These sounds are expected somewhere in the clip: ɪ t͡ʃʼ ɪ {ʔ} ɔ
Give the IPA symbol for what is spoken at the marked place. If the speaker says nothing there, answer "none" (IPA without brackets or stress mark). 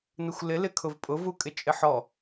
ħ